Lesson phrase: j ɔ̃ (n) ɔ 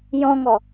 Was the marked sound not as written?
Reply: yes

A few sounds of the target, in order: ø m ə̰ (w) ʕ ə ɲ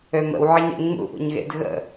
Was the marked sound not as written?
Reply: no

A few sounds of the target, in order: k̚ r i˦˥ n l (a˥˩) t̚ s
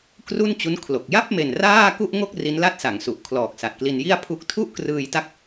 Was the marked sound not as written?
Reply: no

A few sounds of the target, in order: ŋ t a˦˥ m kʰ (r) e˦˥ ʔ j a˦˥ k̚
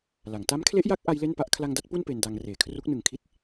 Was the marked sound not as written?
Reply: yes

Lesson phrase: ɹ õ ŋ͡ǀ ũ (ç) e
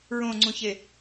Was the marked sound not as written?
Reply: no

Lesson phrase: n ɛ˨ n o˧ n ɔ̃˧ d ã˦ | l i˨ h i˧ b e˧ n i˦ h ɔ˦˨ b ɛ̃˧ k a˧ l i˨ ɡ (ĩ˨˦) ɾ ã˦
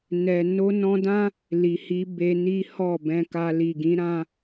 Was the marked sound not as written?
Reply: no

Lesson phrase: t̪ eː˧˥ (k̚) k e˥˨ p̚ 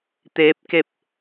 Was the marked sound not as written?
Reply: yes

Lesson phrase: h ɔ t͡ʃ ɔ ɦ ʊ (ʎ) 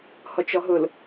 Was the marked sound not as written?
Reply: yes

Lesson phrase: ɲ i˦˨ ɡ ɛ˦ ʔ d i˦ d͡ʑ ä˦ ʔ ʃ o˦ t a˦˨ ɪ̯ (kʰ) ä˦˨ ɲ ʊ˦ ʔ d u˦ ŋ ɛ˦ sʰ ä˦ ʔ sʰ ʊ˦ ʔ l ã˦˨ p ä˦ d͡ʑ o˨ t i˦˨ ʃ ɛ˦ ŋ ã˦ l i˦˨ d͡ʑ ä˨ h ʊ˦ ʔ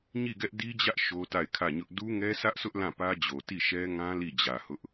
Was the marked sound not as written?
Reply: no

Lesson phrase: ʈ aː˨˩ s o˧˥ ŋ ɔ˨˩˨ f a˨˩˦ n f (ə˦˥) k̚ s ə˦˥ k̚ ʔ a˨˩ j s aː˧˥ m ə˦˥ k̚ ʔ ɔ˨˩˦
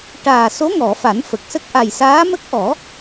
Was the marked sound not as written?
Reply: yes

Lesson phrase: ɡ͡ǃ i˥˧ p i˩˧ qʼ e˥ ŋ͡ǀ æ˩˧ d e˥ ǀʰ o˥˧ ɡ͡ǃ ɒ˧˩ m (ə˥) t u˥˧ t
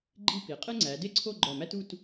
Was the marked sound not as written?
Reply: yes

